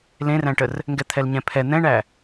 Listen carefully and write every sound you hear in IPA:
l ẽ r æ̃ ʈ ə r | ŋ ɡ ɛ t̪ʰ ɛ l ɲ ɛ̃ pʰ ɛ n̪ ɛ̃ ɳ æ

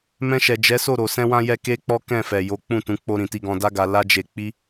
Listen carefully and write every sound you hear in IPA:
m ɛ̃˧ ʃ ɛ˨ d͡ʒ ɛ˨˦ s o˦˨ ɾ o˨ s ɛ̃˧ w ã˧ j ɛ˧ k e˦ k͡p ɔ˦ k ɛ̃˦˨ f ɛ˨ j o˨˦ k͡p ũ˦˨ t ũ˨˦ k͡p o˧ ɾ ĩ˨ t i˧ ɡ ɔ̃˧ d a˦ ɡ a˧ l a˦ d͡ʒ e˧ k͡p i˦

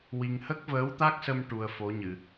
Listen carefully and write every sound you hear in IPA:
w i˧ ŋ h ə˦˥ k̚ v əː˧˥ w t̪ a˦˥ k̚ s ə˧ m ʈ u˧ ə̯ f o˧˥ ɲ ɨ˨˩˨

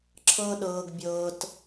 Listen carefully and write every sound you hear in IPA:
ǁʰ ɤ˦ ɗ ɤː˧ ɡ bʲ ɤː˧ t

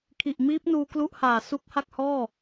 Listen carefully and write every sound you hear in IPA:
kʰ i˨˩ ʔ m iː˦˥ p̚ n uː˧ k l u˦˥ ʔ h aː˨˩ s u˦˥ k̚ h a˥˩ k̚ h ɔː˥˩

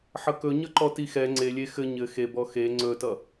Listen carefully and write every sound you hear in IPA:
ħ ʌ k ɵ ɲ ʌ ǃ ɔ t i x ɛ ŋ͡ǀ e lʲ e x ɘ ɲ ɘ x e b ɔ x e ŋ͡ǀ ɵ t ʌ

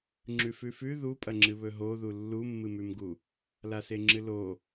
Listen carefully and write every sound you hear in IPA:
ŋ͡ǁ ʉ f ʉ f ʉ ð u pʼ ɐ ŋ͡ǁ ɨ β ɵ ɦ o ð u lː u mː ɨ m ʉ m ɡ u | l a s e ŋ͡ǁ ɨ l o

